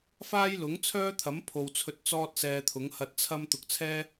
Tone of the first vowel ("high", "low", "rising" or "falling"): high